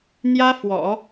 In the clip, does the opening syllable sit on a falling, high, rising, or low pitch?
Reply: high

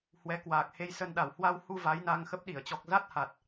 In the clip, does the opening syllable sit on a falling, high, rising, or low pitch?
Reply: rising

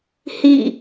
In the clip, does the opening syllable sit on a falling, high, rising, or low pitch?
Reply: falling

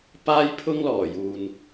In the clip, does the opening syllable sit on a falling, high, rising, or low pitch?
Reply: high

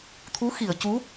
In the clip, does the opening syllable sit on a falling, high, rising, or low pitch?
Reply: rising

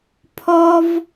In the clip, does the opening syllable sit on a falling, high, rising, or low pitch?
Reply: high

